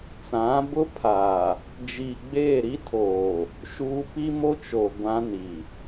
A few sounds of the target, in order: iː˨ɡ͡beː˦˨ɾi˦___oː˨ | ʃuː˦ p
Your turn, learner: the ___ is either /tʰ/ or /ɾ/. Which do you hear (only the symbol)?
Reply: tʰ